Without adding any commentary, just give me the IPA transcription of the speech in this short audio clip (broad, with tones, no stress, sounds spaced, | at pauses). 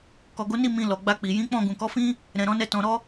k ɔ˨ ɡ o˨˦ n i˦˨ m ĩ˧ l ɔ˨ ɡ͡b a˧ k͡p i˨ j ĩ˨˦ k͡p ɔ̃˦˨ ɡ ũ˨ k ɔ˨˦ f ĩ˦ | ɾ ɛ̃˨ ɾ ɔ̃˨˦ n ɛ˧ t ɔ̃˨ ɾ ɔ˧